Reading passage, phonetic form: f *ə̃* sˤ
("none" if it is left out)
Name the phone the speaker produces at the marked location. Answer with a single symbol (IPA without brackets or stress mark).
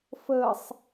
ə